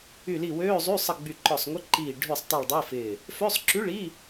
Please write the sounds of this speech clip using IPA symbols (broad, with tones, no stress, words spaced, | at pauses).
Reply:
y˧˩li˧˩ wøː˧˥˧zˤy˧˥˧ sˤə˧˩ ɡ͡by˧˩ǃɔ˧˩sˤŋʷɪ˧˥˧ ǃiː˧˩ ɖʱy˧˩sˤ tˤi˧˩ɭdˤɪː˧˥˧fɪː˧˩ | fø˧˥˧sˤǁy˧˥˧ɭiː˧˥˧